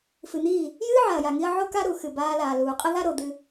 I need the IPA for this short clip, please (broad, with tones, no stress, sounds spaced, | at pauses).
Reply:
f ɨ˨ n̪ iː˦˨ | j ɨː˦ ʕ a˨ ɐ̯ j a˨ ŋ i˧ ɐ̯ ʕ o˦ k a˦ ɾ u˨ x ɨ˨ b aː˧ l aː˨ l uː˨ qʼ ə˦ ð a˦ ɾ o˨ d̪ ɨ˧